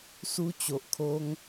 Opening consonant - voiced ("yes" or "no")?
no